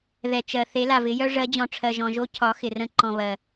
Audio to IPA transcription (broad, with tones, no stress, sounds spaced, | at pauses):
ð ɛ˨ t͡ʃ ɜ˨ θ e˨˦ l a˨ v ɪ˨˦ j œ˦ ʐ ɜ˨˦ d͡ʑ ɔ̃˨ ʈ͡ʂʰ ɜ˨ ʒ ɔ̃˨ ʒ o˦ cʰ ɒ˨˦ x ɪ˨ r ə̃˦˨ ǃ ɔ̃˨ β ɜ˨